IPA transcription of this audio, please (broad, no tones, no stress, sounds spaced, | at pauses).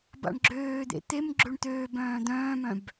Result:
b a̰ ɳ ɡ͡ǁ øː d̪ ḛ t̪ e m ɡ͡ǁ ø ɳ t̪ øː b œ̃ː d̪ œ̃ː m œ̃ b